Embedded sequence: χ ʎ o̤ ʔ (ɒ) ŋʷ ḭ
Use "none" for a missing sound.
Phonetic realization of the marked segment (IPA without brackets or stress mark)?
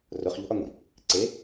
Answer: ɒ